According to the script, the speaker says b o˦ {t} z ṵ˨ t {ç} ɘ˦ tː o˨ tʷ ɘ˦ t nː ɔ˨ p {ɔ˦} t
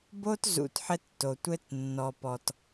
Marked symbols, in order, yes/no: yes, no, no

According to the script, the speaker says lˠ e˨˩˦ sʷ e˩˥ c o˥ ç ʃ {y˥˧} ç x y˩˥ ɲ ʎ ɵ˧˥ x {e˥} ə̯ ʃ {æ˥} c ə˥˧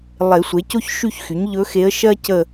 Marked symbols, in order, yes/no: yes, no, no

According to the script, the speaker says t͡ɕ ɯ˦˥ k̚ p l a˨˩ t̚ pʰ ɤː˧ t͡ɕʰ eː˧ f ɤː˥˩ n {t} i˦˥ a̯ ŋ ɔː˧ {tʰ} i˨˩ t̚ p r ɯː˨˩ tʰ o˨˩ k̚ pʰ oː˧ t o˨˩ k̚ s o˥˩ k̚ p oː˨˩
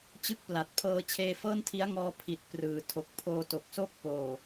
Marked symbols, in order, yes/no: no, no

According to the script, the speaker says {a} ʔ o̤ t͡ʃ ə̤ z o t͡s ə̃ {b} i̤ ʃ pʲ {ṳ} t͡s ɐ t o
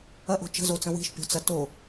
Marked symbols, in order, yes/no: no, no, no

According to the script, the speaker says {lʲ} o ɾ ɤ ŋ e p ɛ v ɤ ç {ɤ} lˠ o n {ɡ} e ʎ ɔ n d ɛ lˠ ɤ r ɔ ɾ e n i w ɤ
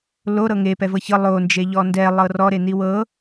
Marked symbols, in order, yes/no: no, yes, no

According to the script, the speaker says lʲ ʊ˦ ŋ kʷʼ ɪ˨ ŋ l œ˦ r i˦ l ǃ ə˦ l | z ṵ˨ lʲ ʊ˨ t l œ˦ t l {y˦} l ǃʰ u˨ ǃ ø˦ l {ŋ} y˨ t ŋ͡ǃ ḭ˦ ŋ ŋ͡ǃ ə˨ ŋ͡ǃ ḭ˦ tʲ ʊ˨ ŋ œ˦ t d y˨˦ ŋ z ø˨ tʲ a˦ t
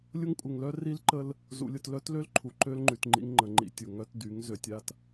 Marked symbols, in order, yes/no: no, no

